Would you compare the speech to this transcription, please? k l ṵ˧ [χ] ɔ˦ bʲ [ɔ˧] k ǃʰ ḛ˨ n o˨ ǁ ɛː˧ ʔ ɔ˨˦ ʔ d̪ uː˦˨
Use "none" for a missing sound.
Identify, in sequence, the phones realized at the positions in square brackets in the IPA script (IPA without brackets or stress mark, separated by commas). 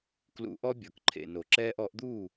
ʔ, ɔ˨